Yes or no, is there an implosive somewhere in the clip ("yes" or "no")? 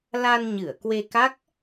no